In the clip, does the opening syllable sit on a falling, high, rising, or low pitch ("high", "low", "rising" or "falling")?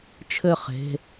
falling